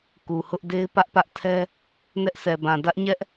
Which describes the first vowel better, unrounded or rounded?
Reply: rounded